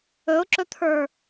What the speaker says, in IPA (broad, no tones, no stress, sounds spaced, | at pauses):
ɵ ʊ̯ ǁ ɵ t̪ʰ ə˞